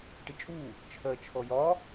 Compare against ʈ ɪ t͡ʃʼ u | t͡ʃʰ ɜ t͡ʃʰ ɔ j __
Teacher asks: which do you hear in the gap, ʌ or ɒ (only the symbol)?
ɒ